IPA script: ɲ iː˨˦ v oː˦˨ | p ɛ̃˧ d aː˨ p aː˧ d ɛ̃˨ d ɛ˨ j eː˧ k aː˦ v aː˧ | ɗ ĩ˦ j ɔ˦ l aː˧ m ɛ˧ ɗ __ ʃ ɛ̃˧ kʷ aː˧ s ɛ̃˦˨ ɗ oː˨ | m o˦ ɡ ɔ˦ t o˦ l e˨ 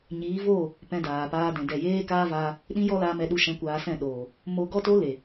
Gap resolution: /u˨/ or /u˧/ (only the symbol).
u˧